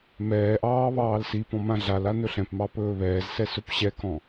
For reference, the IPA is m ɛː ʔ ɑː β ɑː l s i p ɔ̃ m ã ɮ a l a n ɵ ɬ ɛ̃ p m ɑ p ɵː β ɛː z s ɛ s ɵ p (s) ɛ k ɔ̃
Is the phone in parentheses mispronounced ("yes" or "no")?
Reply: yes